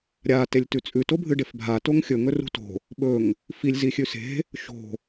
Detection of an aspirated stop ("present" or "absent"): absent